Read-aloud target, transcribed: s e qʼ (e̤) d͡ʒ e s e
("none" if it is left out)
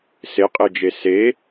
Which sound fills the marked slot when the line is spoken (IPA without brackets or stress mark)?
e